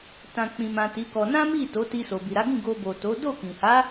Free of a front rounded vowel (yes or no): yes